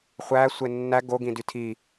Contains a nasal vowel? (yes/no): yes